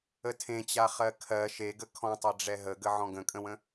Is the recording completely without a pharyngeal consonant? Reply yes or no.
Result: no